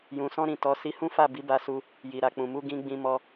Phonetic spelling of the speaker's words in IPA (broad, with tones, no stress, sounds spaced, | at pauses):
j ũ˨ s ɔ̃˧ ɾ ĩ˨ t ɔ˨˦ s i˧ h ũ˦ f a˦˨ b i˨˦ b a˧ s u˧ | j i˨ ɾ a˨ k͡p ũ˨ m u˧ ɡ ĩ˧ ɡ͡b ĩ˧ m ɔ˧